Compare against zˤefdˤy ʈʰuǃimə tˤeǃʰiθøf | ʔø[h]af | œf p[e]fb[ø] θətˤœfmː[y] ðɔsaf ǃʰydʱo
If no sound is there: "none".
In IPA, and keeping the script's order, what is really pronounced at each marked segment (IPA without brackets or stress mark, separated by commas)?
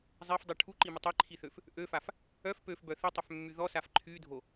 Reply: f, ø, œ, y